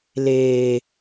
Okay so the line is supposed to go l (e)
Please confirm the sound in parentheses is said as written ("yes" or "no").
no